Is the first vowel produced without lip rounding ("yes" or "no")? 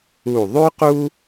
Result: no